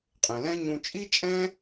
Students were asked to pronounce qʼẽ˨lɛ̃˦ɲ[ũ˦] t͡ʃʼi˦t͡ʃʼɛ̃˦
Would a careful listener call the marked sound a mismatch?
yes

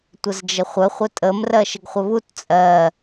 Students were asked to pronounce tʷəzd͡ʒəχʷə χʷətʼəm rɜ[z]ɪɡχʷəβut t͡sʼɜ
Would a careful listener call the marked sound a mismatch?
yes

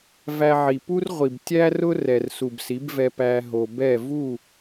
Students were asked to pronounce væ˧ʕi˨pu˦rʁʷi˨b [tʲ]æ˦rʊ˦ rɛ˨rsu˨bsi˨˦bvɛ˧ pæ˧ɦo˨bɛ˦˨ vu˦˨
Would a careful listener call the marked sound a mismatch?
no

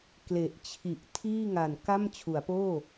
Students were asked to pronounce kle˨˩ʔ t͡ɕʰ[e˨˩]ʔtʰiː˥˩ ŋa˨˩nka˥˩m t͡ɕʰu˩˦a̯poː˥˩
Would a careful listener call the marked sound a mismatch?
yes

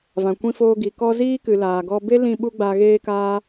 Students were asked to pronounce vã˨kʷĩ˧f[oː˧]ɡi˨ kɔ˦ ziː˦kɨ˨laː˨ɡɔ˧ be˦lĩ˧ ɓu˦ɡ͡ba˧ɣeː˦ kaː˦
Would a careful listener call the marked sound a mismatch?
no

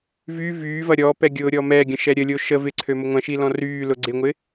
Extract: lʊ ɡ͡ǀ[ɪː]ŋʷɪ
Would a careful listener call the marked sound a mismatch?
yes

